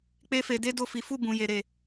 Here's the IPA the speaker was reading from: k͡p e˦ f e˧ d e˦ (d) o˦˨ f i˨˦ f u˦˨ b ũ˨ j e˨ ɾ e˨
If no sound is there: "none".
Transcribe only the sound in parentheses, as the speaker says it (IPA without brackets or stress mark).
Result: d